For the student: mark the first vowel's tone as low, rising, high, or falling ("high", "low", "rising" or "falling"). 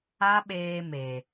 high